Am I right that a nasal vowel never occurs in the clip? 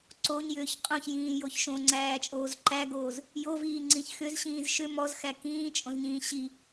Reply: no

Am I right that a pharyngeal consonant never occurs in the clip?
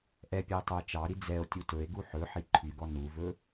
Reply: no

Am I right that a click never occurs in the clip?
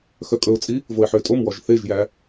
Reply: yes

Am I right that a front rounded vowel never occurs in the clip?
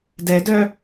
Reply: no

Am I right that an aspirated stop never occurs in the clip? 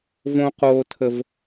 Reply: no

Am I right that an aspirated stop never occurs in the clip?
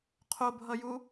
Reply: no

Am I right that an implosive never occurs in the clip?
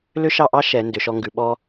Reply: no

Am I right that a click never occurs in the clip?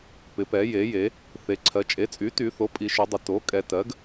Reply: no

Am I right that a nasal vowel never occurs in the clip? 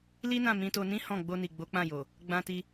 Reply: no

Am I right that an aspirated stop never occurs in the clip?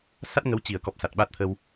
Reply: no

